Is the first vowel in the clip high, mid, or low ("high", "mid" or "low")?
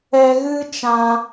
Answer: mid